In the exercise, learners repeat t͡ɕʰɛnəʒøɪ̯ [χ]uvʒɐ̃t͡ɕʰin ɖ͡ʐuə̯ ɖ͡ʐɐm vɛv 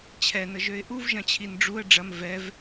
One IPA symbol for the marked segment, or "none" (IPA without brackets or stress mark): ʔ